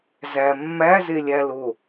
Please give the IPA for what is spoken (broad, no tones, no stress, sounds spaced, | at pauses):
z æ mː æ z e lʲ æ l o